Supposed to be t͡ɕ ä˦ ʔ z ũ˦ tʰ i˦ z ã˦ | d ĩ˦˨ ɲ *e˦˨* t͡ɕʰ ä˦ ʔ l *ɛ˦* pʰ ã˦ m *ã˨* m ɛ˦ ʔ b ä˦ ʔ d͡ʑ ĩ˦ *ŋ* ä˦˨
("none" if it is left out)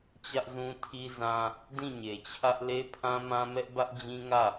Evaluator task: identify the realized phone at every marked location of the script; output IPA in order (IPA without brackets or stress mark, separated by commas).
e˨, e˦, ã˦, ŋ